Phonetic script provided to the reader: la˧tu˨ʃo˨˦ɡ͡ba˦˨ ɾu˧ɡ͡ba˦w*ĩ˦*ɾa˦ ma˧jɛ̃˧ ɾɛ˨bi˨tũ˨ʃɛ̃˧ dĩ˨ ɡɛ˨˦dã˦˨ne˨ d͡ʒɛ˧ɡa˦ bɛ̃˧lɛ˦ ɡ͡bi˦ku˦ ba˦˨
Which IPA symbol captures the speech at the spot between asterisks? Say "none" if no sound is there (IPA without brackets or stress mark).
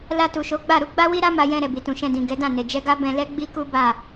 i˦